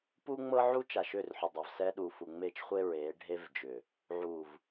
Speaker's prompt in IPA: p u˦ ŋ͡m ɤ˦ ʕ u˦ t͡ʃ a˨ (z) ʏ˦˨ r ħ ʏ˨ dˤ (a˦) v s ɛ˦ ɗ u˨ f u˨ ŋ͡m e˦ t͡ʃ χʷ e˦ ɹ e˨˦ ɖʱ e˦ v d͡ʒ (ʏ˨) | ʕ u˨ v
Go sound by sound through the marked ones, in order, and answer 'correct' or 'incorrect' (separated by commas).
incorrect, incorrect, correct